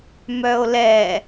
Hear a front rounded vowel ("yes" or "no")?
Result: yes